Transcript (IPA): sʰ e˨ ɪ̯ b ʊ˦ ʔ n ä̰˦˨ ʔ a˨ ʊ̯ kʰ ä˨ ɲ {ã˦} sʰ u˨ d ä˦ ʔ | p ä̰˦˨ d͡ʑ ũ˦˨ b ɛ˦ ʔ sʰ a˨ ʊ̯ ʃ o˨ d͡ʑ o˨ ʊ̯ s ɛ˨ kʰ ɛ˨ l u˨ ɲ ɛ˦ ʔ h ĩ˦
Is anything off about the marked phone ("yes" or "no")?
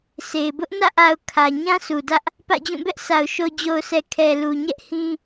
no